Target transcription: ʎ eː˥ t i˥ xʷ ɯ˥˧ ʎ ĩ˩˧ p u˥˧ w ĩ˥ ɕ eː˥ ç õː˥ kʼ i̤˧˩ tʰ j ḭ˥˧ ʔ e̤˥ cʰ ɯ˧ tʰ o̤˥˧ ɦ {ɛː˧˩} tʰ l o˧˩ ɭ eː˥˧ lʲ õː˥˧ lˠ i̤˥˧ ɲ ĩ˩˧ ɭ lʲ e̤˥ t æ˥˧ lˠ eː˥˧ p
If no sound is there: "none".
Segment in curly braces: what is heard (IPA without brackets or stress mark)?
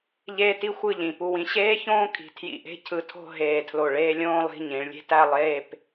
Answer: eː˧˩